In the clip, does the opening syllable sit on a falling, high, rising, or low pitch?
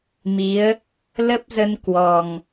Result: rising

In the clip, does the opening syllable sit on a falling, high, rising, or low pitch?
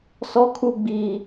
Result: high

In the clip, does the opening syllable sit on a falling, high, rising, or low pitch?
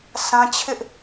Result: high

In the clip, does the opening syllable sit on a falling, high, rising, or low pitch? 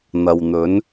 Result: low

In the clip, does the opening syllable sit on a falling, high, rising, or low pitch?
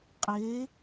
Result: rising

